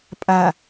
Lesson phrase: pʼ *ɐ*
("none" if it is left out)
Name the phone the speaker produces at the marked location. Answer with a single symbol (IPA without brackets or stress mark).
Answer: a